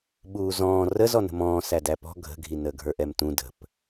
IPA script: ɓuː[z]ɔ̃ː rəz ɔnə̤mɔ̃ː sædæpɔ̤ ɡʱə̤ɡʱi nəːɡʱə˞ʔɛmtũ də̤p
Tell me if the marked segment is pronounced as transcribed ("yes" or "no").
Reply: yes